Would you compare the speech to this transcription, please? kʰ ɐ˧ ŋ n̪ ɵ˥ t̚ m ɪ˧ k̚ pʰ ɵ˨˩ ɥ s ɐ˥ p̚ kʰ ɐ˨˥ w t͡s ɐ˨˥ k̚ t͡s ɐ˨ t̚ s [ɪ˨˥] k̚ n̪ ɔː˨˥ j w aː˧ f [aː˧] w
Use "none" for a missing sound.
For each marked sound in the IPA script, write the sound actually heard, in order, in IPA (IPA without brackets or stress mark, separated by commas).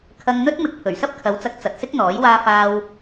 ɪ˥, aː˧